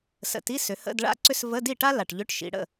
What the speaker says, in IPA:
sə̰˨˩ti˧˥˧ sʏ˩˧hə̰˧˥˧dɭa̰˥ǀʏ˥s və˧˥˧di˥˩ʈa˥ la˨˩ʈʎʏ˧˥˧ʈʃḭ˩˧ ɽə̰˥˩

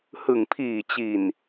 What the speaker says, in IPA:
hɯ˨˩ŋpʰiː˨˩t͡ɕi˨˩n

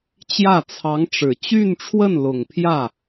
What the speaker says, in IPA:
t͡ɕjä˥˩t͡sʰɑ˧˥ŋʈ͡ʂɻ̩˨˩ t͡ɕy˥˧nʈ͡ʂʰwə˥˩nlʊ˨˩ŋ pʰjä˥˩

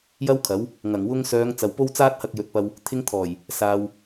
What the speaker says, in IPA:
jɐ˥wkʰɐ˨˥w | ŋɐ˨˩ŋwʊ˧ŋsœː˨˧ŋ t͡sɐ˨wpo˥wt͡saː˥t̚hɐ˧k̚ jɵ˨˥t̚pɐ˧w | t̪ʰɪ˧ŋt̪ʰɔː˨˩j | saː˨w

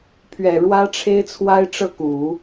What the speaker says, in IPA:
pʰɥɛ˨˩ɻwä˥ ʈ͡ʂʰe˥ɪ̯t͡sʰwa˥ɪ̯ʈ͡ʂɤ˥˩ ku˨˩˦

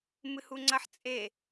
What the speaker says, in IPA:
mɨhuŋ͡ǀɐħ t͡sʼe

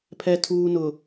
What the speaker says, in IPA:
pʰɛ˨tʰuː˨nʊ˨

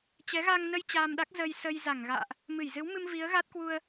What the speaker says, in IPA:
t͡ɕɛ˨˦ɣa˧ŋnə˧j t͡ɕaː˧mɗa˦˥k̚ zə˧jsə˧j za˧˩ŋɣa̰ː˧˨ʔ | mɨ˧˩jzɨ˨˦wmɨ˧m vi˨˦ə̯ɣa˦˥t̚kwu˧ə̯

